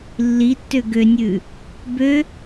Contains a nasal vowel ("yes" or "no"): no